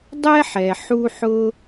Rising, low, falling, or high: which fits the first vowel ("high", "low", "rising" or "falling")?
high